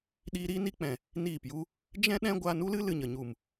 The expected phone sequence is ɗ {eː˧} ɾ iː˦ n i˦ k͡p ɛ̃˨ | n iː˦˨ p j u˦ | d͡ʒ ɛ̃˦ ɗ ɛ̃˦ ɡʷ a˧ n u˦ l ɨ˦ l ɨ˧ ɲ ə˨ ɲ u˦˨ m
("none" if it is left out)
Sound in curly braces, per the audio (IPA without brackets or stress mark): iː˧